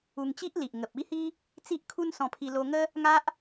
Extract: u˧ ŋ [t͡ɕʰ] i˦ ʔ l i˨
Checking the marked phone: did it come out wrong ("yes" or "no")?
yes